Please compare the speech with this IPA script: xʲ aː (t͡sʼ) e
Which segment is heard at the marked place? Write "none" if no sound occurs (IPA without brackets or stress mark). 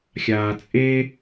t͡sʼ